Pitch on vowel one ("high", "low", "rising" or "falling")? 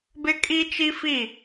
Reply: high